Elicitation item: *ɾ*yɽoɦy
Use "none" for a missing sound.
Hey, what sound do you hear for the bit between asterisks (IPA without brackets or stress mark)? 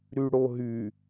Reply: ɾ